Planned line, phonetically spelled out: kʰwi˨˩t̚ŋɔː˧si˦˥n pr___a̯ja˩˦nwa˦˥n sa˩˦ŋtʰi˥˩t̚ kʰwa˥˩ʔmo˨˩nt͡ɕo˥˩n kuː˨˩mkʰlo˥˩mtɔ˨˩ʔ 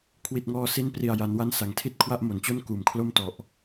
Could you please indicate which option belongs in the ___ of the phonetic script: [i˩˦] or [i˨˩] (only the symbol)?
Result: i˨˩